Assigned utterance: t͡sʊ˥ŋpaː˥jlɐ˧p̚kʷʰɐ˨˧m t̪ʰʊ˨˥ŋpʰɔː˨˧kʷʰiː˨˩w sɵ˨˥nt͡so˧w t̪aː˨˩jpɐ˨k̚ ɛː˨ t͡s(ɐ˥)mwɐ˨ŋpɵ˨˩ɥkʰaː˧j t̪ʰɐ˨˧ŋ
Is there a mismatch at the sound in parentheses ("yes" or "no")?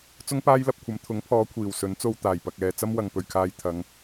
no